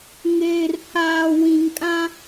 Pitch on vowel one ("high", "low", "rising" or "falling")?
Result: low